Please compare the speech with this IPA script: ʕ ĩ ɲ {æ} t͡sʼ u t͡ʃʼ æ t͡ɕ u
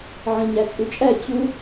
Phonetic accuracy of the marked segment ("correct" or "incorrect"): correct